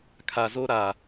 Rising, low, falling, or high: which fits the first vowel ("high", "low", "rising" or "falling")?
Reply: low